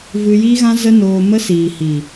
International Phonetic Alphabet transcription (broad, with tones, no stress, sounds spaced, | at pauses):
v ɨ˧ j i˦ ɣ ã˦ z ə˦ n oː˧ m ə˦ s iː˨ h i˨